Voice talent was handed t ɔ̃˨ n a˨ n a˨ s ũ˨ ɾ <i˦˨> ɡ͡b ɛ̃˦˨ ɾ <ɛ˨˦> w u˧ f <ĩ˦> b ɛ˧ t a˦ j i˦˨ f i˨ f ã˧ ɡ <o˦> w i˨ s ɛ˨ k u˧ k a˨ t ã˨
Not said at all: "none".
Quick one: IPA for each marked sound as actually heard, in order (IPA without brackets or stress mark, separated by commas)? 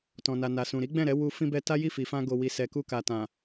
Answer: i˨˦, ɛ˨˦, ĩ˧, o˨